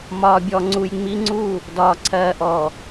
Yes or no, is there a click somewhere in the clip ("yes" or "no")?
yes